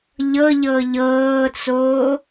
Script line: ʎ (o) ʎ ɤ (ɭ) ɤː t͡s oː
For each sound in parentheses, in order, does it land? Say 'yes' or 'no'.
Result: no, no

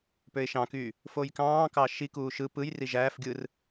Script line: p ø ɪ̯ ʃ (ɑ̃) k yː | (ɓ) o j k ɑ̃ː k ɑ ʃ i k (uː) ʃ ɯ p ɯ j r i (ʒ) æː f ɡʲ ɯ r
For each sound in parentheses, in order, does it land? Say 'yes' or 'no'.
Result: yes, no, yes, yes

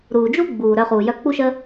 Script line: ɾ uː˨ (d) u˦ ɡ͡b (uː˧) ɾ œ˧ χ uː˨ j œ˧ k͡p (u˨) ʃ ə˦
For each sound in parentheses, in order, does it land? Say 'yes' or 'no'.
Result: no, no, no

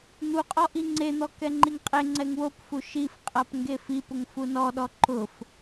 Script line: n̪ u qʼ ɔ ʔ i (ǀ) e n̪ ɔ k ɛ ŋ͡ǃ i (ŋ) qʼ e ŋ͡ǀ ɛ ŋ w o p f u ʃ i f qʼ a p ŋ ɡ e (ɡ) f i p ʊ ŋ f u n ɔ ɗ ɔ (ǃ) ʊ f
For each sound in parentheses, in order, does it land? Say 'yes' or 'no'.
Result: no, yes, no, yes

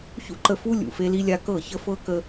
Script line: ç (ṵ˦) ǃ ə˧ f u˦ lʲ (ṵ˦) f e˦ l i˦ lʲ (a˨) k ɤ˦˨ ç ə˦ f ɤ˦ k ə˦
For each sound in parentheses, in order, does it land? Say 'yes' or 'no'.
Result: yes, no, no

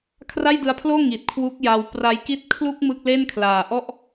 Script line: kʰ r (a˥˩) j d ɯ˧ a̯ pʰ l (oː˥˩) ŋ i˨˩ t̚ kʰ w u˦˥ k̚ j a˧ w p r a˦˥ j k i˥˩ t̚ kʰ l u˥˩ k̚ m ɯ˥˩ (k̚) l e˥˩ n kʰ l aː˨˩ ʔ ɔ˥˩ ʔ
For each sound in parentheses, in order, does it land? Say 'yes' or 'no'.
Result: yes, yes, yes

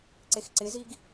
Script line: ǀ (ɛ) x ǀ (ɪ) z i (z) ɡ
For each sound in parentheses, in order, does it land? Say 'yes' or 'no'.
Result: no, yes, no

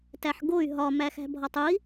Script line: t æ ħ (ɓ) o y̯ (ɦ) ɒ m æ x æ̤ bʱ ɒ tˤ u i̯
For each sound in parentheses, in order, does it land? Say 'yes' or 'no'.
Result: no, yes

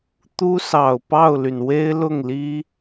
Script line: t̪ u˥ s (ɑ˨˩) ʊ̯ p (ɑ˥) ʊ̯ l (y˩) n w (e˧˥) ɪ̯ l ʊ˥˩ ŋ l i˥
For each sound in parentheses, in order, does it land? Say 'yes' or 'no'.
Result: yes, no, yes, no

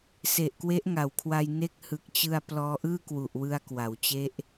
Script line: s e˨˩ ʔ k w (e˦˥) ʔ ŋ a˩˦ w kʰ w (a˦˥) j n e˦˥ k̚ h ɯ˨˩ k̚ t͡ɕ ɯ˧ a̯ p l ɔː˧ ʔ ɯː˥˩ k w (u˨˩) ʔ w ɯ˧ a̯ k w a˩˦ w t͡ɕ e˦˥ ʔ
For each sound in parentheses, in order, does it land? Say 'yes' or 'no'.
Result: yes, no, yes

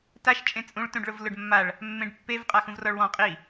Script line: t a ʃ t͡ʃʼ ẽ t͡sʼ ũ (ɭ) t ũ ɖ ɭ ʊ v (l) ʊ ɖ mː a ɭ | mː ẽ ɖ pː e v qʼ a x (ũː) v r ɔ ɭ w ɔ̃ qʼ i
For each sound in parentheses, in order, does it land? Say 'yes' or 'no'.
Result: yes, yes, no

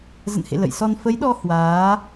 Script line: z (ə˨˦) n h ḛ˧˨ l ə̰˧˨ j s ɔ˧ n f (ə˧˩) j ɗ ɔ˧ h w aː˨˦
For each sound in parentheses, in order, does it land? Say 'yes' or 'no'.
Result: no, no

